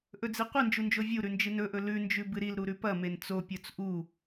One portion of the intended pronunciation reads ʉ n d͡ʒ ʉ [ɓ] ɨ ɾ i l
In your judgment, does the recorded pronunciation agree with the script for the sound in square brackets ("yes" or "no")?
no